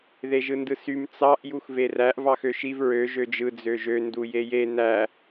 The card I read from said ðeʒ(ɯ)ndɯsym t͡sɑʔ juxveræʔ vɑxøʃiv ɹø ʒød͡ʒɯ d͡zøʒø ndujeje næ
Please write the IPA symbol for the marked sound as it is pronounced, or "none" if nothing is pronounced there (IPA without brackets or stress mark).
ɯ